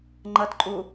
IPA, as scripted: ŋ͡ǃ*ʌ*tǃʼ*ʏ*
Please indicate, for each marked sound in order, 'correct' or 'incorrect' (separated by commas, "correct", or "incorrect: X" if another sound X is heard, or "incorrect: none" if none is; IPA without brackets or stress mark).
correct, incorrect: u